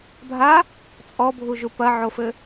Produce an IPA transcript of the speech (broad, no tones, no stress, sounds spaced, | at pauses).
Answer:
bʱ a | t͡sʼ ɔ bʱ u ʒ u p ɐ ʕ o f ɘ